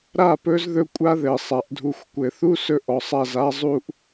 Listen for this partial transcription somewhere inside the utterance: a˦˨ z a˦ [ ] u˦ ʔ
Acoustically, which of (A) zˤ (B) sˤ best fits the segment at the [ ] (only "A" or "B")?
A